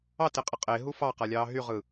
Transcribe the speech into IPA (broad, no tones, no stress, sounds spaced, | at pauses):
ɑ t e qʼ ə qʼ e ɦ u f ɑ q a lʲ ɑː ɦ y ʁ ɯ